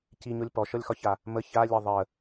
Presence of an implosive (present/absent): absent